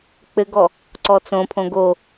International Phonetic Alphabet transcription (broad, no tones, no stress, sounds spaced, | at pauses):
k͡p ɘ ɡ ɔ | ǀ ɔ t͡s õ pʰ õ ɡ o